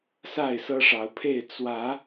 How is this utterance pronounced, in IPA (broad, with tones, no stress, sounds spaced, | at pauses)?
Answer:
s a˥˨ ɪ̯ s ɤ˦ ʂ ɑ˨˦ ʊ̯ pʰ e˥˨ ɪ̯ t͡s w ä˨˦